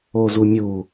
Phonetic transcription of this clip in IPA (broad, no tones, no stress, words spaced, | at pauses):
ozumʲu